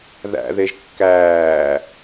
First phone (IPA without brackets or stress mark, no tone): ð